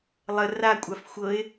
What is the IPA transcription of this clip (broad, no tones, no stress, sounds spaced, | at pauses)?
lˠ ə r a kʷʼ a f xʷ ɤ ɪ̯